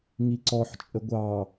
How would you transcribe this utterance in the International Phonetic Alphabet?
ŋiǀɔħ t͡ʃʼəɡʷɑ

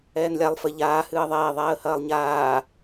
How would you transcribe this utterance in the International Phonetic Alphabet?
ɛːnlʲalˠ fɘ ʎaː hɨːə̯ðˤeː ðˤɛːə̯hɐːlˠɲaː

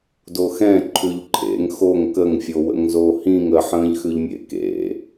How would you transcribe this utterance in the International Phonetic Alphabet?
doxɛ̃ ǃʰʉʎǃʰḛŋ xoŋ kəŋfʲowə̰ŋzo hĩŋ əħə̃ːʎxʉʎmʲḛ kḛ

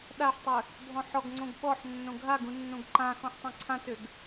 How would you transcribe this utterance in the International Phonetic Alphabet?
ɗaħtˤø | bʱɔ̃ħɔɡŋ͡ǀõɡ ɓɔħ nːõɡʱaɡũ nːõɡǃãxɔ̃ħ tˤãǀʰãtøɡ

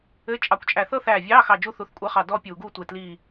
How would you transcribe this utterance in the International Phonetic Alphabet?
ɘ˧˥˧ t͡ʃʼɑ˧˩kʷt͡ʃʼæ˧˩ θɤ˥˧θæː˧˩vʲɑː˧˥˧xɑ˧˩ d͡ʒu˥˧θu˧˩˧θkʷʼe˧˥˧χɑ˧˩ dɔ˥˧ pʲuː˧˩˧ɡuː˥˧ tʷe˧˩tliː˧˩

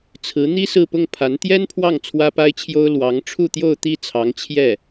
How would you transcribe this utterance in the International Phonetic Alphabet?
t͡sʰɹ̩˧˥n̪i˥ sɹ̩˥˧pʊ˥˩ŋpʰa˧˥n t̪jɛ˥npʰwɑ˥˩ŋ t͡sʰwä˥pa˥ɪ̯t͡ɕʰjo˥ʊ̯ lwɑ˧˥ŋ ʈ͡ʂʰu˥˧t̪jo˥˧ʊ̯t̪i˥˩ t͡sʰɑ˧˥ŋ t͡ɕʰjɛ˥˩

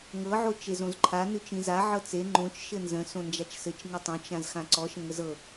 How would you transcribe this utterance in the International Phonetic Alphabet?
ŋɤʕo t͡ʃezõzǃʰa nʉt͡ʃĩza ʕɤt͡se ŋ͡ǃõt͡ʃ ʃɘnzə̃ sõnd͡ʒat͡ʃsɘt͡ʃ ŋɘtˤõt͡ʃ ãzxãǀɔ ʃə̃ŋəzɤ

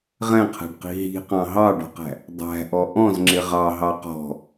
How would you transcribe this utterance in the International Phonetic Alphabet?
ʁɛ̃qʰæ̤ɖqi̤ ɦi̤qɑ̃ ɦɑɖɔ̤qæ̤ | dˤæ̤ʔɔ ʔɔ̃zŋ͡ǁɪ ʁɑɦɑ qɔ̤

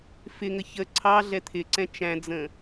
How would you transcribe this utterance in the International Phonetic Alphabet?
fɪŋə çə ǀʰɑ ɮɛt̪ʰɪǀɛ̃ t͡ʃæ̃d͡zə̃

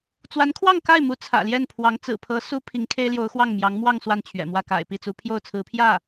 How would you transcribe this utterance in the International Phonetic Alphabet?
t͡swa˧˥nkʰwɑ˥˧ŋka˥˩ɪ̯mu˧˥ t͡sʰä̰˨˩ljɛ˥˩npʰwɑ˧˥ŋ t͡sɹ̩˨˩pʰɤ˧˥ su˥ pʰi˧˥ŋkʰe˥ɪ̯ljo˧˥ʊ̯ xwɑ˥˩ŋmjɑ˧˥ŋ mwɑ˥˧ŋ swa˥˩nt͡ɕʰɥɛ̰˨˩mwä˥˩ ka̰˨˩ɪ̯pi˥˩t͡su˧˥ pʰjo˥˩ʊ̯t͡sʰɹ̩˧˥pʰjä˥˩

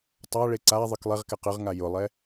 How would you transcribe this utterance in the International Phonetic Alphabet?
tˤaɭe ǀa ðˤɨklˠeʁkɛq ɨʁŋa jʊlˠɛ

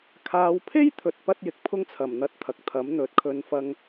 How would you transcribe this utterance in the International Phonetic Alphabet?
kʰaː˨˧wpʰe˥jt̪ʰɵ˨t̚ pɐ˥t̚jɪ˨k̚ pʰʊ˥ŋt͡sʰɐ˨˩mn̪ɐ˨˥t̚ t̪ʰɐ˨k̚t̪ʰɐ˨˥m n̪ɵ˨˥t̚ kʰɵ˨˧nfɐ˧ŋ

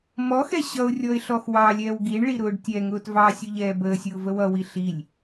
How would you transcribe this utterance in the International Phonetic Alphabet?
mɔxɛ ɕʌʊ̯rʲɔɪ̯ ɬɔxwɑlʲɛːw ɡiɳɭi ɾʊːɖtʲɛŋʊːt vɑsʲʊ ʎɛːbəːsʲʊː vəwʌwi ɬilʲ

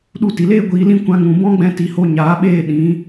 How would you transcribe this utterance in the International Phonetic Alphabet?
ɗu˧ti˨leː˦ ɡʷiː˧lĩ˦ kʷã˧ŋũ˨ bɔ̃˦ɡ͡bɛ̃˧ti˨ho˧ ɲaː˨˦ɓeː˦˨ ɗĩ˨˦

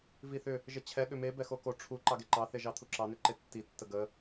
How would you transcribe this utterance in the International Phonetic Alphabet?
viθʏ | ʒət͡ɕʰɛ ɠʏme bɛxoko ʈ͡ʂʰu ǃɑɡeǃɑ θeʒɑt̪ʰuǁɑ nʏǃetːi tːəɡə

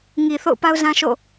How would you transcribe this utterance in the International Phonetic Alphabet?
ŋi˨ θo̰˦˨ʊ̯pa˦ʊ̯zã˦ʃo̰˦˨

